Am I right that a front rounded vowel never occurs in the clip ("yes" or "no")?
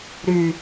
no